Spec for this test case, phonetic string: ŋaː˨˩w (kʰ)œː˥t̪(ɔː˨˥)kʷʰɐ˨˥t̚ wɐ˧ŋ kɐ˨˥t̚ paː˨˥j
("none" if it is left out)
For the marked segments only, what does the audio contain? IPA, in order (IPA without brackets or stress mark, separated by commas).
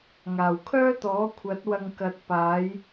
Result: kʰ, ɔː˨˥